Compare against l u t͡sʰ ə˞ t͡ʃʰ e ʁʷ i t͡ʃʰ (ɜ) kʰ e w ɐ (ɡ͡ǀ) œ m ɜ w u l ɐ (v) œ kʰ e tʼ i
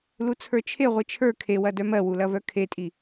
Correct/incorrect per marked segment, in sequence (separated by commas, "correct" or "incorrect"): incorrect, incorrect, correct